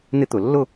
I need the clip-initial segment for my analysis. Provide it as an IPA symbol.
n̪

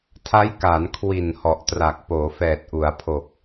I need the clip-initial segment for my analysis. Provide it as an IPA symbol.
tʰ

